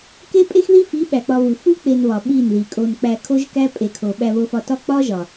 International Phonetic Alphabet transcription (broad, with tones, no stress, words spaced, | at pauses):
ke˦pʼe˦xði˦fi˨˦ ɓæ˨k͡pɒ˧βu˨ fu˦ k͡pe˧nβɒ˨ ɓi˦˨nði˨kʼo˧n k͡pæ˧kʰo˦ʒkæ˦ pʼe˨kʰo˨ ɓæ˧βo˧fɒ˧tɒ˦ k͡pɒ˦ʒɒ˨